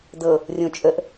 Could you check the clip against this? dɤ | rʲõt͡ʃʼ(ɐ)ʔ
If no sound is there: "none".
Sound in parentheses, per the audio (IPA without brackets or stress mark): ə